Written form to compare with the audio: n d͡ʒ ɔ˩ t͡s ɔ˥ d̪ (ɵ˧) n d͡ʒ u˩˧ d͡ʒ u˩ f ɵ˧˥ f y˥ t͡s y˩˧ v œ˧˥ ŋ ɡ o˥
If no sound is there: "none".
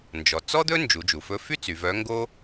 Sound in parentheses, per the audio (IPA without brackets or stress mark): ɵ˥